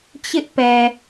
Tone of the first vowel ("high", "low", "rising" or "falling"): high